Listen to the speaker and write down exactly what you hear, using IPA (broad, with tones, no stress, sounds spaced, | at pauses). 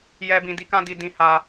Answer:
j ɛ˦ b ĩ˧ d i˦ k ã˦ d i˧ d ĩ˧ h a˧